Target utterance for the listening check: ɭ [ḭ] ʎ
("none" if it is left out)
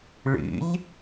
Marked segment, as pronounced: ḭ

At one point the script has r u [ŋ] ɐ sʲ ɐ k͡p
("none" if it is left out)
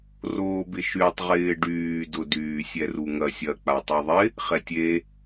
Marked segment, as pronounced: ŋ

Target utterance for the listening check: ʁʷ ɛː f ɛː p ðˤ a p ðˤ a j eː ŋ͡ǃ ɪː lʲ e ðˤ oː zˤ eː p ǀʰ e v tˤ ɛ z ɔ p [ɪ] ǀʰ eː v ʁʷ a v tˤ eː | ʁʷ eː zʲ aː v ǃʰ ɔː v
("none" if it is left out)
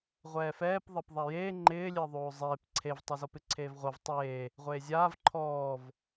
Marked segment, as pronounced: ɪ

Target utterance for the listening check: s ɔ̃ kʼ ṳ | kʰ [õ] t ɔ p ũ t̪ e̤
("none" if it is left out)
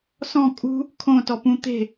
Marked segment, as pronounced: õ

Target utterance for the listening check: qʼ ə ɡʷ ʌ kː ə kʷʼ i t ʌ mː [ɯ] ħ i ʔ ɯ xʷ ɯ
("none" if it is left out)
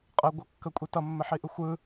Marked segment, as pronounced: ə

